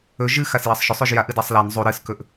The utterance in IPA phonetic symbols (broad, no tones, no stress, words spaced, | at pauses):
ɵ ʒɨ xasjɐsˤʃɵsˤ ʉʒjaʔ ɨdasˤlan zˤu ɾɨskɵʔ